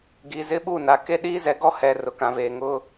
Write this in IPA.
ɡ i˨ z ɪ˦ ɓ u˦˨ n a˨ k e˦ ɗ iː˦ z ɛ˨˦ ɡ ɔ˦ h ɛ˨ r ʊ˨ k ã˨ v eː˨ ŋ ʊ˦

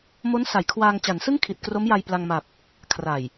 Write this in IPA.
m o˦˥ n s a˩˦ j kʰ w aː˧ ŋ t͡ɕ a˩˦ n s ɯ˥˩ ŋ kʰ i˨˩ t̚ k r o˦˥ m j a˧ j p l a˧ ŋ m a˨˩ p̚ | kʰ r a˨˩ j

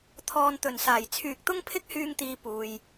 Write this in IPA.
t̪ʰ ɔː˨ n t̪ ɵ˨˩ n s aː˨˩ j t͡sʰ yː˨ k̚ t̪ ʊ˥ ŋ pʰ ɪ˥ k̚ h yː˧ ŋ t̪ iː˨ p uː˨ j

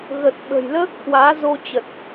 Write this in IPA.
ɣ ə˨˩ t̚ ɓ ə̤˨˩ j l əː˦˥ k̚ h w aː˨˦ z o˧ t͡ɕ ə˨˩ t̚

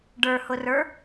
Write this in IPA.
ɖ ə˞ h ʊ r ə˞

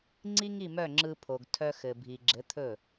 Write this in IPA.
ŋ͡ǀ i˥ ŋ i˥˩ m œ˥˩ ŋ͡ǁ ɯ˧ pʰ o˩ ɡ tʰ œ˧ x ɘ˩ bʱ i˩ ɡ͡ǁ ɘ˩˥ t̪ʰ ɵ˥˩

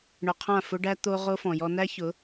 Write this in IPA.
ɳ ʊ˨ qʰ ã˦˨ f ʊ˦ ɖ æ˦ t̪ o˦ ʁ o˦ f ɔ̃˨ j ɔ˦ n æ˦ ç ʊ˨˦

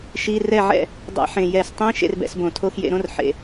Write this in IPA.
ʃ i˧˥˧ r ɛ˥˨ ʕ ɛ̰˥˨ | dˤ ɛ̰˧˩˧ ħ ẽ˨˩ j ɛ˧˩˧ s tˤ ĩ˧˥˧ ʃ ḛ˥˨ r b ɛ̰˨˦ s b õ˧˩˧ tʰ o˧˥˧ x j ḛ˨˦ ɾ õ˧˥˧ r ħ ḛ˨˩

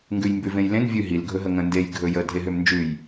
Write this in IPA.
ŋ ɡ ʉ j m b ʉ v ẽ j l ẽ n vʲ ʉ ɦ i l ɡʱ ɵ ɦ ə ŋ ə̃ n d e j ɡʱ ɵ j ə dʱ e ɦ ø m n d͡ʒ ʉ j

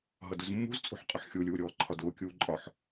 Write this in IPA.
ɦ ʌ d ʊ z mː ṳ z t͡sʼ ṳ ħ qʼ ʊ ħ xʲ u lʲ uː ɾʲ ɔː ǃʰ ɒ d ʊː kʲ uː ǃʼ ɒ ħ

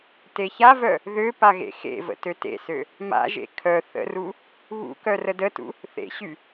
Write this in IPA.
t e ç a v œ | ð ø p a ɣ ḛ x ḛ v ə̰ t ø t ḛ s ø | m a̰ ʒ ḛ kʰ œ θ ə̰ r u | β ṵ k œ r ə d ə t ṵ | θ ḛ ɕ y

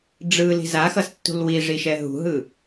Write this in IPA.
ɖ͡ʐ ɯ l i̤ z a x ʌ s tː ṳ l w i ʐ i ʃ ɛ ɦ ṳ ɦ ɯ

